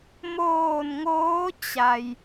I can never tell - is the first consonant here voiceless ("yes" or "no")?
no